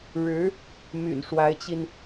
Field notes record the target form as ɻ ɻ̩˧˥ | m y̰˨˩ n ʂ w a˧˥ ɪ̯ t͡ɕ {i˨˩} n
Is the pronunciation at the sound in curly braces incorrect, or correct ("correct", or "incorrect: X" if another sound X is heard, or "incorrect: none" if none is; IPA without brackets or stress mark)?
incorrect: i˧